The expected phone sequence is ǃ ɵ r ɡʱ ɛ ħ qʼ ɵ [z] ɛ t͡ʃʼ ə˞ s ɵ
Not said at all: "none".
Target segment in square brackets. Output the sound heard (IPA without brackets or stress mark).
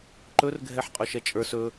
ʃ